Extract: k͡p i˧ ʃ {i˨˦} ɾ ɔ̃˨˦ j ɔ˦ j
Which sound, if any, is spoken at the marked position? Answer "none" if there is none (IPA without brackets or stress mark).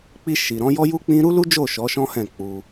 i˨